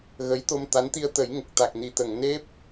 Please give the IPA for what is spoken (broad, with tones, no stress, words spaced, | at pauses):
ɣə˧˥jt̪o˧mt̪a˧˥n t̪i˧ə̯t̪ə˨˩˦j ŋə˨˩k̚t̪a˨˩k̚ni˨˩˨t̪ə˨˩˨ŋ ne˦˥p̚